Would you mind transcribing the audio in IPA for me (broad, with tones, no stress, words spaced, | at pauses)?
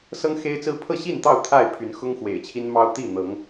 sɤ˦ŋxe˦ɪ̯t͡sɹ̩˦ pʰɤ˥˨ɕi˥˨nt̪ɑ˥˨ʊ̯ t̪ʰa˥˨ɪ̯pʰy˨˦n xʊ˦ŋxwḛ˨˩ɪ̯t͡ɕʰi˦nmɑ˦ʊ̯ t̪i˥˨ n̪ɤ˨˦ŋ